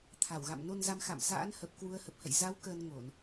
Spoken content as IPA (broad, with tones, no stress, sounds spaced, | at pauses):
t̪ʰ a˧˩ w ɣ a̰˧˨ m n o˧ n z a˨˦ m x a̰˧˨ m s a̰˧˥ n h ə˨˩ p̚ k w u˧ ə̯ h ə˨˩ p̚ h ə̰˧˨ j z a˨˦ w k əː˧ n ŋ o˧˩˨ n